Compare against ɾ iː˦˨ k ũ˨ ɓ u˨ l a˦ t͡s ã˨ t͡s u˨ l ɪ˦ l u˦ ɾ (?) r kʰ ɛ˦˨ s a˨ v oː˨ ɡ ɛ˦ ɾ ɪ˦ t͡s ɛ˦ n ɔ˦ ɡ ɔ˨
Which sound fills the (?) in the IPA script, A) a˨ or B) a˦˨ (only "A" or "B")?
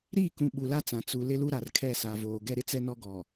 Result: A